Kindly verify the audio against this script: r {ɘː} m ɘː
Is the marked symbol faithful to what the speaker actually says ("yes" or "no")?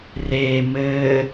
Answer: no